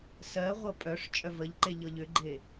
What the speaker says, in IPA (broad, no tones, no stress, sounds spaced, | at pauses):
s ɜ ʁʷ ɤ pʼ œ ʂ t͡ʃʼ œ v ə ʎ ǃ e ʎ ɤ ʎ ʏ ɡ͡ǃ e